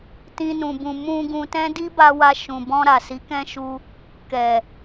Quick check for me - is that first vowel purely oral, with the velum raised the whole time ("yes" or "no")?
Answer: no